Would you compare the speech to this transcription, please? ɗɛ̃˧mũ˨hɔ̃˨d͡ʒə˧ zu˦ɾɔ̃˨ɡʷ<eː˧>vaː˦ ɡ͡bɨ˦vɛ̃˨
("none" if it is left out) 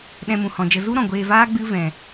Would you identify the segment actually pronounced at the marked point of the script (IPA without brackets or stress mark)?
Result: eː˧